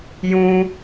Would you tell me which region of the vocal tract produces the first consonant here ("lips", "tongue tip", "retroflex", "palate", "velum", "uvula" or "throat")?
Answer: palate